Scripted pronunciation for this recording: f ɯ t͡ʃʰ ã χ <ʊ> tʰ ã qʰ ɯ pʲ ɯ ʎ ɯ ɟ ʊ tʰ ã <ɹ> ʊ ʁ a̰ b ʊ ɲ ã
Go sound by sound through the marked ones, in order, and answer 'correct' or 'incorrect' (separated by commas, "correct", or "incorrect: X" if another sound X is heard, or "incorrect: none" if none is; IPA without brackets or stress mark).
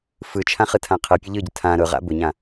incorrect: ɯ, incorrect: ɾ